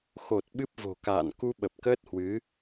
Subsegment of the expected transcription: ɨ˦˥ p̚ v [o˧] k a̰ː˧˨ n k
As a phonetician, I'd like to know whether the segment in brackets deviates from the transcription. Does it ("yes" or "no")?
yes